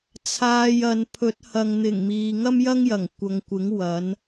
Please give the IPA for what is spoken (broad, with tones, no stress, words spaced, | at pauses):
t͡sʰaː˨j ɐ˨npʰɵ˨˥t̚ hɐ˨ŋn̪ɪ˨˩ŋmiː˨ ŋɐ˥mjɐ˥ŋjɐ˨˩ŋ kʷɐ˨ŋkʷɪ˨˥ŋ wɐ˨˥n